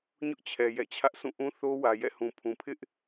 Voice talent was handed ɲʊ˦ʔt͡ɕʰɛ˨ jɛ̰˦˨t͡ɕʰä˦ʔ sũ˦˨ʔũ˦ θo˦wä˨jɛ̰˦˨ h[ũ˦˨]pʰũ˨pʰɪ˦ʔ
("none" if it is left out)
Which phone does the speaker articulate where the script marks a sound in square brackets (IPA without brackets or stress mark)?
ũ˨